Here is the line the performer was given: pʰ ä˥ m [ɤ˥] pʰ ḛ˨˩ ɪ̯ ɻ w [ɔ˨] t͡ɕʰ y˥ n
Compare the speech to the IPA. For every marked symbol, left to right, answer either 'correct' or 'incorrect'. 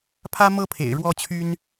correct, incorrect

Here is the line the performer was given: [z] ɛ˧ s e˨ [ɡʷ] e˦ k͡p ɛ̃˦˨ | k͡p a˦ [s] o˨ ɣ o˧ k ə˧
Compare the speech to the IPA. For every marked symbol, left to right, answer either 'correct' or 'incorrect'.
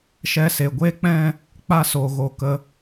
incorrect, correct, correct

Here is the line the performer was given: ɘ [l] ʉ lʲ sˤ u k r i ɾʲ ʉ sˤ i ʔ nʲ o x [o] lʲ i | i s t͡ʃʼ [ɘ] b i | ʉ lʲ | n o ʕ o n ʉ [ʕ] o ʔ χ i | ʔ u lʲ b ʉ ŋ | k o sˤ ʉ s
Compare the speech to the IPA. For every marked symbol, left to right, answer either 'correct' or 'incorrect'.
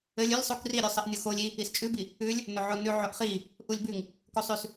incorrect, correct, incorrect, correct

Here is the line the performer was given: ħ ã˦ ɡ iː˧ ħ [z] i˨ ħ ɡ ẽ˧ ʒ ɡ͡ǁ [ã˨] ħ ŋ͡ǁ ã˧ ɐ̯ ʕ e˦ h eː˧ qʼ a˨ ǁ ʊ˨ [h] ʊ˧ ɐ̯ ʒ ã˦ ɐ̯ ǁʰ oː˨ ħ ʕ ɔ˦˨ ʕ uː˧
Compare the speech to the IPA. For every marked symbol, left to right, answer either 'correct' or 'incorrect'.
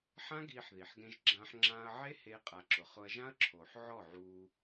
incorrect, incorrect, incorrect

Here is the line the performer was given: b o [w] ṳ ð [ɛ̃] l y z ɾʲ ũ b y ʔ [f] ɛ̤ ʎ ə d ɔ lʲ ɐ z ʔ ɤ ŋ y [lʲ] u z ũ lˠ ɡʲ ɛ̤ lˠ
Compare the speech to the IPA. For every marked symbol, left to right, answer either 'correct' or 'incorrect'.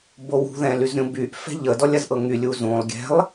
correct, correct, correct, correct

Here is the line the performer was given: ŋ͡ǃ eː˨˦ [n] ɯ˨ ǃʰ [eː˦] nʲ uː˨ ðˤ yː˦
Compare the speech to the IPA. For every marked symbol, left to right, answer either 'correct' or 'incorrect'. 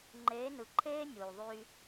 correct, correct

